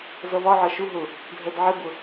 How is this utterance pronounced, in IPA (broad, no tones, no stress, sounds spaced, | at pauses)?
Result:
z ʌ v ɒ ʕ ɒ ʃ u ɦ ʊ | dʱ ɜ d ʕ ɪ b ʊ